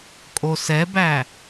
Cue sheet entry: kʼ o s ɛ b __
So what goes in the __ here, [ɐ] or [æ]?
æ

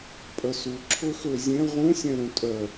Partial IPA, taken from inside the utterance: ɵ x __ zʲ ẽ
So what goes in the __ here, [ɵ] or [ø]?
ø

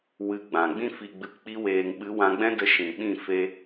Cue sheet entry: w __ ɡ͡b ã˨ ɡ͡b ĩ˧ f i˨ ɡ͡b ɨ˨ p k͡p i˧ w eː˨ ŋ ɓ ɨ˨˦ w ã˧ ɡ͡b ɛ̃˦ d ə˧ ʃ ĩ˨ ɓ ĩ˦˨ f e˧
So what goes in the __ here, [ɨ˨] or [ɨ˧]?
ɨ˧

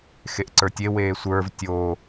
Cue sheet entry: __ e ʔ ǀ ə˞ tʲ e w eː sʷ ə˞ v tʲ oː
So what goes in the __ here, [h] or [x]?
x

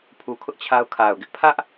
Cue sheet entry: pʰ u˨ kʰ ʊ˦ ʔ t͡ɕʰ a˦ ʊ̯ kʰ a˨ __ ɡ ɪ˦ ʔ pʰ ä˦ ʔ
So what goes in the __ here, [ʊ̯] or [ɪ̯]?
ʊ̯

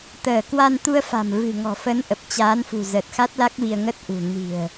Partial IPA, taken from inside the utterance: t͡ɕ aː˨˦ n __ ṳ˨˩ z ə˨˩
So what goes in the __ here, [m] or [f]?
f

